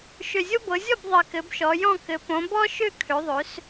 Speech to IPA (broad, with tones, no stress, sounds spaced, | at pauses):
ʃ ø˨˩ zʲ o˦ b ɤ˩˧ zʲ ɔ˥˩ b ðˤ ɘ˨˩ k ɘ˩˧ b ʃ ɔ˩˧ j ɔ̃˥˩ k ɘ˩˧ p õ˩˧ b ɔ˦ ʃ ø˥˩ kʰ ø˩˧ ðˤ ø˩˧ s